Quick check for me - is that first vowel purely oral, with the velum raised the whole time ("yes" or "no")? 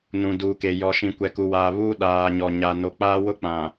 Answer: no